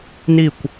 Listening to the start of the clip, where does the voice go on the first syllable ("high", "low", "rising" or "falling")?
falling